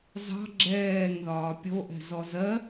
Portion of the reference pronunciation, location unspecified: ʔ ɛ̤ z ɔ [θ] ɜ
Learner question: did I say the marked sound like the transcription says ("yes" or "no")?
no